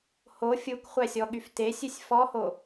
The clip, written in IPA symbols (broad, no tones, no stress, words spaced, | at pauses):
ho fʲukχʷæsʲɔɠyf tesʲʉsʲ fɔho